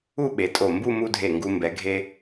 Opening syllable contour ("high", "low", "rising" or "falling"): falling